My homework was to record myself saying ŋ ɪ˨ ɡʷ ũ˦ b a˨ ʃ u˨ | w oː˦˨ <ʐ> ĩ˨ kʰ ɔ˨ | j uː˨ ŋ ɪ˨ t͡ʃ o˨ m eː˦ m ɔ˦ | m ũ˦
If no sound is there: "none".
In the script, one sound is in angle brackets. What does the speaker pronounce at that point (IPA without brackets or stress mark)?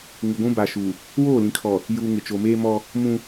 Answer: l